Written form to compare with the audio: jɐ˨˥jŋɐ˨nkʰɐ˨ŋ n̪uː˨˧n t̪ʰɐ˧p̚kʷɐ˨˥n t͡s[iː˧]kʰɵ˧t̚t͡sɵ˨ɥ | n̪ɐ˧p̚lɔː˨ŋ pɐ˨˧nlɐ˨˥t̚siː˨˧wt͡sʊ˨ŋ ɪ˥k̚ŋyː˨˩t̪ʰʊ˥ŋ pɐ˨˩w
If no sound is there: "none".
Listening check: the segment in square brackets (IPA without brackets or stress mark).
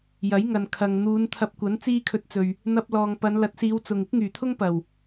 iː˥